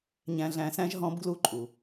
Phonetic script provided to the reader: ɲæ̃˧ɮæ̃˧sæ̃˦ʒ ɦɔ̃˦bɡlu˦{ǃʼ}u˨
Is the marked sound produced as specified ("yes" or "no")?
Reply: yes